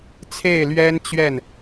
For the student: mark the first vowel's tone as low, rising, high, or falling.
falling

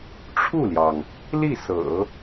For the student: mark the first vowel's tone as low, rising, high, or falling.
falling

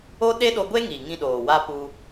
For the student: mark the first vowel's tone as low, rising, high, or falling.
high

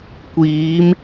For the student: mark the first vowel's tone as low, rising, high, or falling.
rising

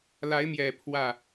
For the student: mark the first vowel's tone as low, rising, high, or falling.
rising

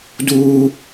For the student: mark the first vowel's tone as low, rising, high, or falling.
high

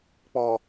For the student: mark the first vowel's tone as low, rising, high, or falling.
low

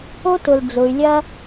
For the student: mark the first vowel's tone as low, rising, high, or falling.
high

